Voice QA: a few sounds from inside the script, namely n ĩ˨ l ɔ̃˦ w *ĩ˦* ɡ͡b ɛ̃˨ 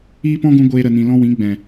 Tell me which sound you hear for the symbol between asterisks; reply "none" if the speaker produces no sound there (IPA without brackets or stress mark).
ĩ˨˦